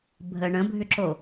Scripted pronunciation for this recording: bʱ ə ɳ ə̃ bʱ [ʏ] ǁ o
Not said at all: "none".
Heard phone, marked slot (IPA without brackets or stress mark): ʏ